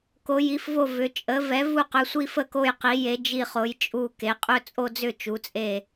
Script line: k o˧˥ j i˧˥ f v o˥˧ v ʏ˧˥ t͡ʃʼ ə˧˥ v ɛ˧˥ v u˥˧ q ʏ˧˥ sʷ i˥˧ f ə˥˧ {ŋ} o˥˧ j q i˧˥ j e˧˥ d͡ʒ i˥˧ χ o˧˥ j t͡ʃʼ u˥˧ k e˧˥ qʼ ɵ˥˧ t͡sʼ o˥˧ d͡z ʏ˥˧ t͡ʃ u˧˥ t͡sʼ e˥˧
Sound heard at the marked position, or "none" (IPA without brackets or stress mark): k